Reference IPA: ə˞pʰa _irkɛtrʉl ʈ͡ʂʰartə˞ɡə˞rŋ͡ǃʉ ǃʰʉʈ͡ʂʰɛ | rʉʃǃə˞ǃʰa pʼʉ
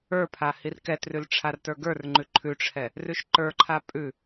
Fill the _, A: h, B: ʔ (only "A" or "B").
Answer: A